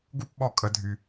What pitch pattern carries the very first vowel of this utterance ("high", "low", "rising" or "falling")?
high